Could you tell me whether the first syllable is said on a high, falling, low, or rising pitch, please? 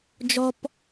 high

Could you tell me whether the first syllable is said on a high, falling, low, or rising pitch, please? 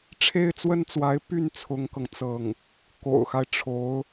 high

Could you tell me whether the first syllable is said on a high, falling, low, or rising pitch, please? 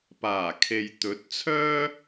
low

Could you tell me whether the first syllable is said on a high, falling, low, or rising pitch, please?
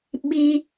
high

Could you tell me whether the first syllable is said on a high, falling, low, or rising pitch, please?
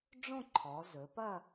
falling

